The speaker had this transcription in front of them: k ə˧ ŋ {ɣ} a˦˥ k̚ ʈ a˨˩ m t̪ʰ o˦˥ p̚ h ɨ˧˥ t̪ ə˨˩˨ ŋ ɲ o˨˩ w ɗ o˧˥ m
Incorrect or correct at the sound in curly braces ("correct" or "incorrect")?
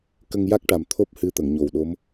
incorrect